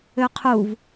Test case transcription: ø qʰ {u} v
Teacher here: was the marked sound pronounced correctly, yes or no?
yes